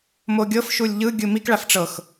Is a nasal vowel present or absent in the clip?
absent